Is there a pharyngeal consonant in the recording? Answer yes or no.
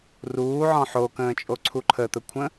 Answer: yes